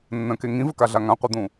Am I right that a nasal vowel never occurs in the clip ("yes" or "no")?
no